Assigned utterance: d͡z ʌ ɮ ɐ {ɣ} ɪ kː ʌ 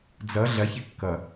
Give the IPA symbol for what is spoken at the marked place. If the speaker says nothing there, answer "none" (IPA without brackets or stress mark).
ç